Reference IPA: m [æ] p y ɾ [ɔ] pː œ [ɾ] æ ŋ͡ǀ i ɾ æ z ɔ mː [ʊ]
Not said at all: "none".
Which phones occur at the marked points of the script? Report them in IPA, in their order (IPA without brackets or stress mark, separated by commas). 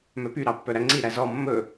œ, ɑ, ɾ, ɵ